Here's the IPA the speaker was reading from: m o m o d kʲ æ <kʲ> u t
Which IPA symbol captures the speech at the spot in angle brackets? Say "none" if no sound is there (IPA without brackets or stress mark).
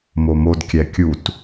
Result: kʲ